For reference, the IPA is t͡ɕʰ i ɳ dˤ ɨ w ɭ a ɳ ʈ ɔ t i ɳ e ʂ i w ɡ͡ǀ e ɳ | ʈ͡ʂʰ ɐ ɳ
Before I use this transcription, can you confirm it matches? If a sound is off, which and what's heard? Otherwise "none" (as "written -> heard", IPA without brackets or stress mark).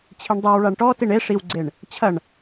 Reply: ʈ͡ʂʰ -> t͡ɕʰ